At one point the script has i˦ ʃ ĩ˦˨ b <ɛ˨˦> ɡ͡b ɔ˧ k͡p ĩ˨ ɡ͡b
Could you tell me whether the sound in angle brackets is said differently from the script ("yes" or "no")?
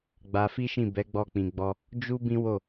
no